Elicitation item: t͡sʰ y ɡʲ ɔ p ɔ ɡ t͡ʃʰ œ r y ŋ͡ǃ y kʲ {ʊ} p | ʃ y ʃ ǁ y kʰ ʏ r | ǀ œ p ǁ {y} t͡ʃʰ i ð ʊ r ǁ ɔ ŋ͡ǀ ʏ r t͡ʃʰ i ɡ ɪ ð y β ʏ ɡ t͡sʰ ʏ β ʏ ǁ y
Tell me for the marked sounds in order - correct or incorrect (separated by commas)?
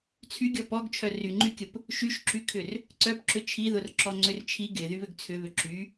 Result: correct, incorrect